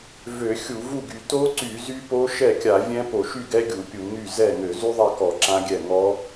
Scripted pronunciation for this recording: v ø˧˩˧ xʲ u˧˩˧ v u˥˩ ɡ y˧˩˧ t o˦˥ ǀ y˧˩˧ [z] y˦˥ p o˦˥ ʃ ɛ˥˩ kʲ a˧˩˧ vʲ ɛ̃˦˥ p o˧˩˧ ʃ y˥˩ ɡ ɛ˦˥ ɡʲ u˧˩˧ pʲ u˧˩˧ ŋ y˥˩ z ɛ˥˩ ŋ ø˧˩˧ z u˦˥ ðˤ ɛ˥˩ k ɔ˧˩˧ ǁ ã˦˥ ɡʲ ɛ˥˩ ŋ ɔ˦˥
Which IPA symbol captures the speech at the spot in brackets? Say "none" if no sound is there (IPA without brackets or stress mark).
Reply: z